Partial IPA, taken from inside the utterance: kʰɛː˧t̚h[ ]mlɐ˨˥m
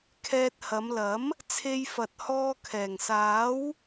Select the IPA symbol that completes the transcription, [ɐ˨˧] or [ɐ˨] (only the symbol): ɐ˨˧